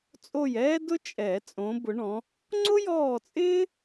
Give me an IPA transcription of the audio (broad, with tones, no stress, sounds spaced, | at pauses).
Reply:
t͡sʼ o˦˨ j ɛː˥ d ʊ˥ t͡ʃʼ ɛ˨˩˦ t͡sʼ õ˨˦ b ʊ˨˦ ɳ ɔ̃˨˦ | ŋ͡ǀ ʊ˥ j ɔː˦˨ t͡sʼ ɪː˥